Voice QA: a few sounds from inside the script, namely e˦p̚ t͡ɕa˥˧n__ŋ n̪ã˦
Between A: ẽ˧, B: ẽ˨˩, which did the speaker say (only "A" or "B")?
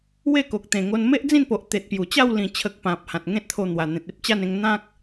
A